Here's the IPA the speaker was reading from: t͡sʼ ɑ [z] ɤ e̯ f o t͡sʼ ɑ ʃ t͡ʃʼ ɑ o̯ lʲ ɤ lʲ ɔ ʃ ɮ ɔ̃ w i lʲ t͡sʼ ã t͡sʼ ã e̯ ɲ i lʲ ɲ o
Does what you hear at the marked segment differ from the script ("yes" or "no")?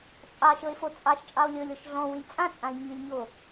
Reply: yes